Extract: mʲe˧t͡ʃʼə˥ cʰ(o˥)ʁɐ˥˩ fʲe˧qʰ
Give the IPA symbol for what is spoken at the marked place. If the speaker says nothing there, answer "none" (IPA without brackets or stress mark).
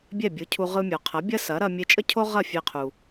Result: o˥